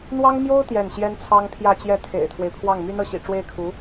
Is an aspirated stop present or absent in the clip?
present